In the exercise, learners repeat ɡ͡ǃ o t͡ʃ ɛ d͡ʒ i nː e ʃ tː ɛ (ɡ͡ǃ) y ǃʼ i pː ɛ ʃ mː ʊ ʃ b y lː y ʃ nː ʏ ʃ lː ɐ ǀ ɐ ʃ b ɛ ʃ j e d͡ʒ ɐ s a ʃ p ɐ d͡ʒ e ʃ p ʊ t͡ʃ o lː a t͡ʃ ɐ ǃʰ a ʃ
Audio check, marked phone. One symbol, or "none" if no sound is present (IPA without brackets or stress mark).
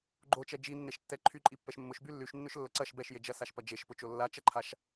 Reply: ǃʰ